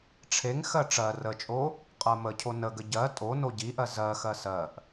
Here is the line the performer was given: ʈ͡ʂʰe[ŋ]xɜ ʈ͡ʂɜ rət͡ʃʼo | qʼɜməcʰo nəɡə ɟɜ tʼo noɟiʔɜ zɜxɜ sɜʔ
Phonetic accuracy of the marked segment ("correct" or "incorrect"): correct